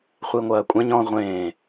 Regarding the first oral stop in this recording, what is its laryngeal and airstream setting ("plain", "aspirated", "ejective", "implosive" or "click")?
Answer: ejective